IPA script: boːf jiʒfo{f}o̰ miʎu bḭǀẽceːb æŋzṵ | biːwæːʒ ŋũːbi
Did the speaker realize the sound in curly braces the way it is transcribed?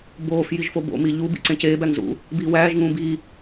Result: no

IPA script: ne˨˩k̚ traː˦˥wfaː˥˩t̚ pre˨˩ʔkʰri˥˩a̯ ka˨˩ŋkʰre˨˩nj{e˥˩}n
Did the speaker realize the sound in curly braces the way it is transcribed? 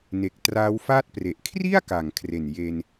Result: no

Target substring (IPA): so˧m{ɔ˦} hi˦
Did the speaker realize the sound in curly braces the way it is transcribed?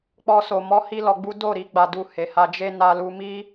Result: yes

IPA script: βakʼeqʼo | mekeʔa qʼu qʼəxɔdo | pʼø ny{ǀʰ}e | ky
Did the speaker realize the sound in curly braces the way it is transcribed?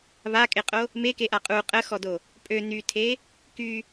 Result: no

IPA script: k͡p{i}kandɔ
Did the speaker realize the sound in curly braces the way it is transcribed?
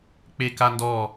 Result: no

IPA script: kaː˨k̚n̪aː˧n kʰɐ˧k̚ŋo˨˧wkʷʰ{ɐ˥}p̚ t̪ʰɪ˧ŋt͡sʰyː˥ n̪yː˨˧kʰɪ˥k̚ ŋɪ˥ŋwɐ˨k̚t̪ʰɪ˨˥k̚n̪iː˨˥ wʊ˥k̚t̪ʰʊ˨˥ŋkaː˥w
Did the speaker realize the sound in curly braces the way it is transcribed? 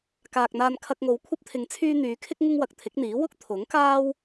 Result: yes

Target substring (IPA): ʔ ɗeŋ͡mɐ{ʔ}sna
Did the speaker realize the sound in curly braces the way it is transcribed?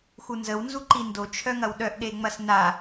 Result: no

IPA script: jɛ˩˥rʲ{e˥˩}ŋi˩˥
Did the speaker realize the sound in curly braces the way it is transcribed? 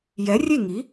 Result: yes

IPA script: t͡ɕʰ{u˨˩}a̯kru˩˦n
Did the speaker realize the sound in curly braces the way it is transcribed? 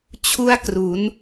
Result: no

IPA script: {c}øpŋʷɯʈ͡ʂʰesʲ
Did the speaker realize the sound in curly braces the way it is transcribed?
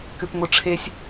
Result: no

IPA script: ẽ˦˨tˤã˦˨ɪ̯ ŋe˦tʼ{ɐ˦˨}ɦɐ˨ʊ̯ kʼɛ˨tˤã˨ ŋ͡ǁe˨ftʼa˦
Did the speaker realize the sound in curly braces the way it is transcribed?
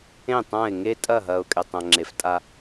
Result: yes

